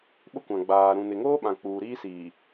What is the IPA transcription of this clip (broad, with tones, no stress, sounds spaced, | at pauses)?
ɓ ʊ˦ kʷ ã˨ ɡ͡b aː˨ ɾ ũ˨ n ɪ˨ ŋ oː˦ ɓ ã˨ k͡p uː˨ ɾ iː˦ s iː˨